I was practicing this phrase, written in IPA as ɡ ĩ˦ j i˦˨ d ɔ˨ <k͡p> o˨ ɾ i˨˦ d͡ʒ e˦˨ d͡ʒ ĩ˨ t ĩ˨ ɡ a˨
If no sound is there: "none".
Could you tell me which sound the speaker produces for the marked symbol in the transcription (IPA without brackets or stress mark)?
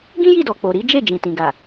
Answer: k͡p